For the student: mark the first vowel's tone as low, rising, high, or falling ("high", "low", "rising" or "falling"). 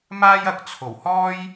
high